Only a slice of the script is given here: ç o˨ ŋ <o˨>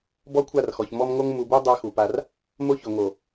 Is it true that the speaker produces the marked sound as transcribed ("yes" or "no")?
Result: yes